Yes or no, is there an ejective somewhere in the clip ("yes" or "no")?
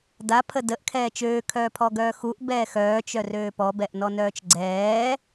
no